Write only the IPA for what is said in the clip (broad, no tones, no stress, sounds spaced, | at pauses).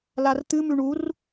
l a r t̪ ɨ m ʉ ɳ u r